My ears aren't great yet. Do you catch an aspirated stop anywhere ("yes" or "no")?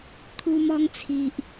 yes